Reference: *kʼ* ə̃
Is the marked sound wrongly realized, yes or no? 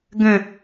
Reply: yes